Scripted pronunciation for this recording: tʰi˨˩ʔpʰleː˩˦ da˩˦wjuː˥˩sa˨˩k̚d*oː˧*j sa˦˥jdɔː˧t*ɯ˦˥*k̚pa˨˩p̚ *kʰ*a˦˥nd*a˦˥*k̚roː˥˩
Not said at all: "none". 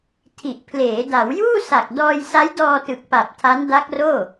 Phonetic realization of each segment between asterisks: ɔː˧, ɯ˨˩, tʰ, a˦˥

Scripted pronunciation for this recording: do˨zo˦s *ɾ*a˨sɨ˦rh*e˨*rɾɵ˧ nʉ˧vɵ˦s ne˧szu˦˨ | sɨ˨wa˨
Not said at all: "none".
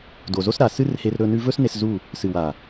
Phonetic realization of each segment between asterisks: ɾ, e˧

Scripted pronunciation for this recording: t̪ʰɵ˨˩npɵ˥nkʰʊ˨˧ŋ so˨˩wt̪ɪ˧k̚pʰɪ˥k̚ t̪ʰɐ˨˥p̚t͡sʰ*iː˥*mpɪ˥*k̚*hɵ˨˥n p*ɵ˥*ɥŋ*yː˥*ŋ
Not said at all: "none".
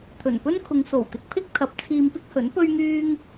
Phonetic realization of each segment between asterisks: iː˧, k̚, ɵ˥, yː˥

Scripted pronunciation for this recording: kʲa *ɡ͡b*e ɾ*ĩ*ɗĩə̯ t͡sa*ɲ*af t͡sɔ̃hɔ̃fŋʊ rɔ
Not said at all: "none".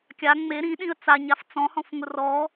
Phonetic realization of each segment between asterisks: ŋ͡m, ĩ, ɲ

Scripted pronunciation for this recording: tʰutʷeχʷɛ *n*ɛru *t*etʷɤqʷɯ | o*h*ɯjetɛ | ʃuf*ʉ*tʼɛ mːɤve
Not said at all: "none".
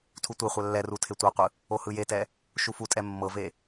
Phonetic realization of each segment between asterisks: lː, tʰ, h, u

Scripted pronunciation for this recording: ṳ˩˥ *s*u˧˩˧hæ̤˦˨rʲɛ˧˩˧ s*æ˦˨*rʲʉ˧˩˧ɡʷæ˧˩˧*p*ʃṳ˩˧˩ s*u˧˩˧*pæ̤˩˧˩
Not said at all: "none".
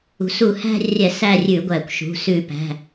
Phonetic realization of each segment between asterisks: s, æ˦˨, kʷ, ʉ˧˩˧

